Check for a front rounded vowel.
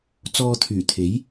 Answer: present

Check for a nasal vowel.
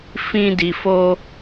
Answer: present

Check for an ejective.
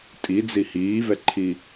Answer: present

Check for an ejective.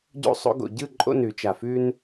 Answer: present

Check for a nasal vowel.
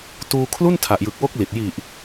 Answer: absent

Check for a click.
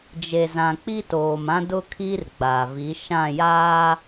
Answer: absent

